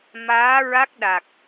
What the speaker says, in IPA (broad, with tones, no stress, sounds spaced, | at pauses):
m aː˧˥ ɹ a˦˥ k̚ ɗ a˨˩ k̚